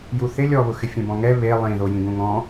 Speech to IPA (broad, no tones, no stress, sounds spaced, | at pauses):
j u θ ɪ lʲ ɔ β ʊ x ɪ fʲ ɛ̃ b ɔ̃ ŋ ɛ β e lˠ ĩ ð o j ĩ ɡ ũ ŋ ɔ̃